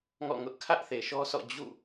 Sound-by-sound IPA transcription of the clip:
ŋɔ̰˦˨ŋʊ˦ʔ kʰä˦ʔθe˨ʃɔ˦sʰɔ̰˦˨ d͡ʑṵ˦˨

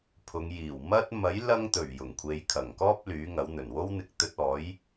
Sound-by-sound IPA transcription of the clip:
pʰʊ˨˧ŋ jiː˨˩w mɐ˥t̚ mɐ˨˥jlɐ˧ŋt̪ɵ˨˩ɥ jʊ˨˩ŋkʷʰe˨˧jkʰɐ˨˩ŋkɔː˥p̚ lyː˨˥ŋɐ˨˥wn̪ɵ˨˩n wo˥wn̪ɪ˧k̚ t̪ɵ˧t̚ɔː˨˥j

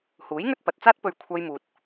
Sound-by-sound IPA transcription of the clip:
huː˨˥j ŋɵ˥t̚pɐ˨t̚t͡saː˥t̚pɵ˧ɥ kʷʰɐ˥jmuː˧t̚

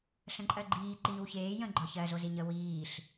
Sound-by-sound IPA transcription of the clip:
ɬə̃ǃʼɜɡ͡ǃiː ǃiːwçeː jə̃ ɡ͡ǃɒçɜ zoziɲə wiːɬ

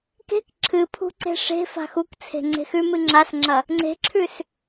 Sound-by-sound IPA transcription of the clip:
ke̤k ǁʰɨpʰṳǀe̤ ʂe̤fa̤ xukt͡sʰe̤ ŋ͡ǀe̤xʉmɨ ŋ͡ǁasŋ͡ǁɐ | ŋ͡ǀe̤ǁʰʉs

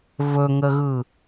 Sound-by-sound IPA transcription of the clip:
vɵŋəɣɯ

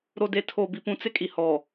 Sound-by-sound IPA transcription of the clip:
ɾo˨ de˨tʰo˨ bi˨pũ˨t͡sɪ˦kʼi˨ hɔ˨

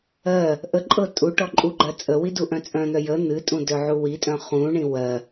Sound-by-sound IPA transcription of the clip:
ɜ | ʔəǃʼɤ tʼu ʈɔǃʼuɡ͡ǃɜ t͡sʼəwi duʔœ̃t͡sʼœ̃n̪œ jə n̪ɨtʼũ dœʕuwitʼœ̃ χũɳĩ wɜ

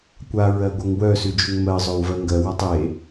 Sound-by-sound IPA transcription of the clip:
kʷaɹɜ ɡʷœŋwœsʉ d͡ʒʉŋmɜzˤœw vɜŋɡɜwatˤ e

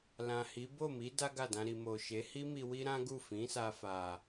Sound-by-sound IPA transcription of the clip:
lã˨hi˨˦ bo˦˨mi˨˦ da˦ɡa˦˨dã˧ ɾi˨mo˨ʃe˨˦ hi˦mi˧ wi˦ɾã˦ɡu˦˨ fĩ˨˦ sa˧fa˨

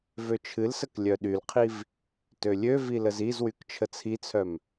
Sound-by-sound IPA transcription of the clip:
vøt͡ʃʰɨlsək lʲœɗylqʰiv | tølʲøvi ləzizwyk t͡ʃʰət͡sʰit͡sʰœm

